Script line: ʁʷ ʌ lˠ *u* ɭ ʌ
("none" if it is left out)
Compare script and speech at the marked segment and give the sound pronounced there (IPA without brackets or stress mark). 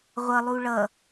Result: u